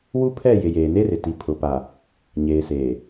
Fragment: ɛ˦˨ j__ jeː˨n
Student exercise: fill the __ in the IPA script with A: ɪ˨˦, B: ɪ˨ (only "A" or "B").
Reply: B